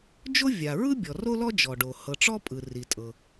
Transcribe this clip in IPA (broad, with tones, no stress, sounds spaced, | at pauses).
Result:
d͡ʒ o˥ vʲ a˩ ɹ ɯ˥ bʲ ɔ˩ r o˥ l ɔ˥ d͡ʒ ɔ˩ ɖ o˩ h ɤ˩ ʈ͡ʂ ɔ˥ pʼ ɯ˩ r i˩ tʼ ɤ˩